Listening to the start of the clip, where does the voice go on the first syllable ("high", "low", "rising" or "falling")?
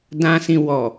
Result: low